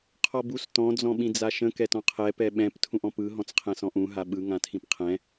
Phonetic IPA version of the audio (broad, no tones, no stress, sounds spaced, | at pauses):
qʰ ɔ b u s t ɔ̃ d͡z ɔ̃ ɓ ĩ d͡z a ʃ ə̃ k ɛ t ɔ̃ qʰ ɛ p ɛ ɓ ɛ̃ p tʰ ũ ʔ ɔ̃ p ɯ ɦ ɔ̃ t͡s qʰ ɛ̃ s ɔ̃ ʔ ũ ɦ a ɓ ɯ ŋ ã tʰ ĩ p qʰ ɛ̃